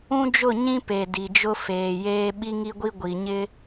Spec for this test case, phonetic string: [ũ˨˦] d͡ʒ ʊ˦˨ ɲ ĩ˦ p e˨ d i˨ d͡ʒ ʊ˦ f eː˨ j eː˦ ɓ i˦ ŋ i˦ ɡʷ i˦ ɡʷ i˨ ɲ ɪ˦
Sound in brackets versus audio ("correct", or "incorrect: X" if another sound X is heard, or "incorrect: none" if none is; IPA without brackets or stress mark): incorrect: ũ˦